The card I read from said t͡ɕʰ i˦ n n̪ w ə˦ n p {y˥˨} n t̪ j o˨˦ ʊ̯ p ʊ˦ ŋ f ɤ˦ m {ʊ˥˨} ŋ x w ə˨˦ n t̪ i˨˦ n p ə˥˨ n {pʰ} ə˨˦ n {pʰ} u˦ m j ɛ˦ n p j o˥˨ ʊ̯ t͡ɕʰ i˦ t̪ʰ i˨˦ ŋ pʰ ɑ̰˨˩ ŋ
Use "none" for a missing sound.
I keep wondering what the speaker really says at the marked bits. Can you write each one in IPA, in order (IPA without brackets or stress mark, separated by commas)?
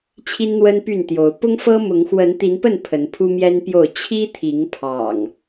y˥˨, ʊ˨˦, pʰ, pʰ